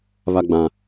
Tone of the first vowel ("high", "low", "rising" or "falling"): high